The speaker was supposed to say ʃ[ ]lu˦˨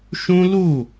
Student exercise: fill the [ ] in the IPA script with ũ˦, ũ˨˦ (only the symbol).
ũ˦